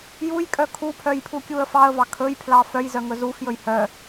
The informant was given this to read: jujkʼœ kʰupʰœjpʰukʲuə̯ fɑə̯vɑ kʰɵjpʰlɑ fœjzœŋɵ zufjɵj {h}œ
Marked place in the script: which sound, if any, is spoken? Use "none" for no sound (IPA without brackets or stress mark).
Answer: h